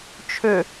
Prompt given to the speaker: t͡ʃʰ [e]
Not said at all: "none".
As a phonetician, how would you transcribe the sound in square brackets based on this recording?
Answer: ø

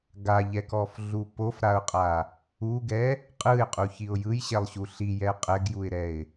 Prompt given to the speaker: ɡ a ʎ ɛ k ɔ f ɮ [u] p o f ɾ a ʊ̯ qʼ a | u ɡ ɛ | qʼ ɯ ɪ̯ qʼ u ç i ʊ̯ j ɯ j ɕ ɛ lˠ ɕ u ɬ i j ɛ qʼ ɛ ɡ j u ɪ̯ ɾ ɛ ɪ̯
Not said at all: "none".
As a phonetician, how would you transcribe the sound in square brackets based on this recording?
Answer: u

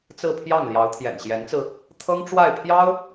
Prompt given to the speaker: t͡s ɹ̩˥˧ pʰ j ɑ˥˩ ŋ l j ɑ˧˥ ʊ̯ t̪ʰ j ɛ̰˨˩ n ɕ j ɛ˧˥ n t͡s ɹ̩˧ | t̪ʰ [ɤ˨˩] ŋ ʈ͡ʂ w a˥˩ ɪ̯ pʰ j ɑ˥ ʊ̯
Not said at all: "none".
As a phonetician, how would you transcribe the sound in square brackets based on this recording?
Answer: ɤ˥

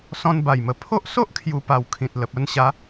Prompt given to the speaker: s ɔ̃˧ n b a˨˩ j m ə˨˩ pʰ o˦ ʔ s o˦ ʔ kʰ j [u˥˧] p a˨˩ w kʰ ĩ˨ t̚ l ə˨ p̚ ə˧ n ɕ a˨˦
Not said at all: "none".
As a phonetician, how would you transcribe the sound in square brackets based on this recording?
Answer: u˨˩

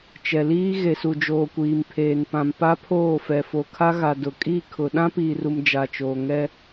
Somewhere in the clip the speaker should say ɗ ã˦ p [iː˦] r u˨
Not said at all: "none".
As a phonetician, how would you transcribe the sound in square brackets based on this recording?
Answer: iː˨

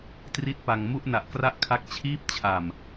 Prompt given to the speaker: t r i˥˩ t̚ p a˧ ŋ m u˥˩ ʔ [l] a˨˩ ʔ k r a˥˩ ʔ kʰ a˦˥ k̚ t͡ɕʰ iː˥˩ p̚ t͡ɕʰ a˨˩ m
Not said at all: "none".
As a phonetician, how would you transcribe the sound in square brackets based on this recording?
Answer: n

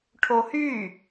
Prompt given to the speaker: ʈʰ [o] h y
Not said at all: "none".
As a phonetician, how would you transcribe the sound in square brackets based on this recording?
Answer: o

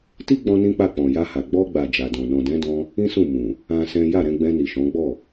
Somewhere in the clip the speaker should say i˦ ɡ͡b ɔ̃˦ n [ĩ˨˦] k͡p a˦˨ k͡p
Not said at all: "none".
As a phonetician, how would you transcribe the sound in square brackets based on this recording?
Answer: ĩ˦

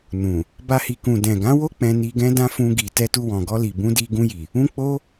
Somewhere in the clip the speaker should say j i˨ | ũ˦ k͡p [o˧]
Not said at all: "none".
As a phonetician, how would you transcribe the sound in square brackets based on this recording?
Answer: o˦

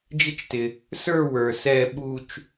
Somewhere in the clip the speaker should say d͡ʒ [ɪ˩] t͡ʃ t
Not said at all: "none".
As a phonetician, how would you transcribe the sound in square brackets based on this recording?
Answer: ɪ˥˧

